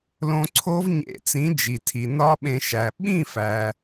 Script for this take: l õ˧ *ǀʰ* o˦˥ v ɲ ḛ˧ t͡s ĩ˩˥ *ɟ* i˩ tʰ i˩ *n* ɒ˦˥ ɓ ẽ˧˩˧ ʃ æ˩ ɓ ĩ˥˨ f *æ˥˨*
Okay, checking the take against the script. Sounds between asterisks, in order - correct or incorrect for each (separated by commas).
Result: correct, incorrect, correct, incorrect